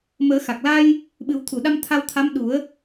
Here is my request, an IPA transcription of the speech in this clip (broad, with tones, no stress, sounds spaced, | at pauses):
m əː˨˩˦ x a˨˩ k̚ l a˧ j | ɓ ɨ˨˩˦ w t̪ʰ u˨˩˨ ɗ a˧ m t̪ʰ a˧ w t̪ʰ a˧˥ m ɗ u˨˩˦ ə̯